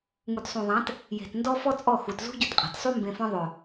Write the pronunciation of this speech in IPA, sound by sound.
ŋ u˨ t sˤ ũ˨ ðˤ ã˨˦ t | j e̤˨ t n d ɔ˦ f ɔ˦ t͡sʼ ɔ˦˨ x u˨ t z ṳ˦ ɟ ɵ˧ t qʼ a̤˨ t sˤ u˦ m b ẽ˧ f ɔ̃˦ ðˤ ɵ˨

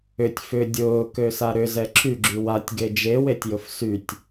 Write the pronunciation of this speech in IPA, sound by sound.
ʏ tʲ f ʏ dʲ ʊː k ø s a ɾ ʏ z ɛ ǁʰ y ɡ͡ǁ y w a tʲ ɡ e d͡ʒ e w e tʲ j ʊ f s y tʲ

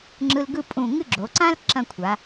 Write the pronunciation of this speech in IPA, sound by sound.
ŋ͡ǁ ɯ˧ l ɡ ɯ˥˧ pʼ ũ˧˩ ŋ ɨ˥˧ ɡ͡ǁ o˩˧ ǀ ã˥ l ǁ ɐ̃˥˧ kʷʰ a˩˧

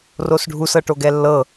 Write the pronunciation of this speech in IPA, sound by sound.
r o s ɖʱ u s ɤ ʈ o ɡ ɛ lː ɤ

